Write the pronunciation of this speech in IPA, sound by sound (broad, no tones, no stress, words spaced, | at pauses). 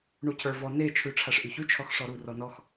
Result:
ɳucʰə˞vɔ ne t͡ʃʰʉʈ͡ʂʰaʂʔyçʉ t͡ʃʰɔxʂɔɾu rɔnɔx